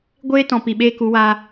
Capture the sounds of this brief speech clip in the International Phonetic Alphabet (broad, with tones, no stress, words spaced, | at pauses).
ɡʷeː˦tɔ̃˨ pi˨ɓeː˦ku˨˦waː˧